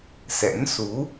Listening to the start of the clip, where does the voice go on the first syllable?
rising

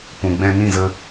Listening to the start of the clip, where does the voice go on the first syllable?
low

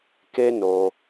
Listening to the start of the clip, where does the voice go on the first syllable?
high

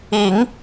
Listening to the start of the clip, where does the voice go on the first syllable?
low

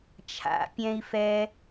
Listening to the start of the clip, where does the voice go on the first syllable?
low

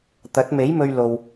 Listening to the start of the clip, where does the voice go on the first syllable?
rising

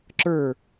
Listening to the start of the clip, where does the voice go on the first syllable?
falling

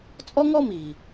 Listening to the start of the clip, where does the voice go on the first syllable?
high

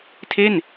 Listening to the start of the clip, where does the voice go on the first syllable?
falling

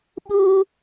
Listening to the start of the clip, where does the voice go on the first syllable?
high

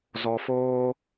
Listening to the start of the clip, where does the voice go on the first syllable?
low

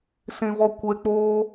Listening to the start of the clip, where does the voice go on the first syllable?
low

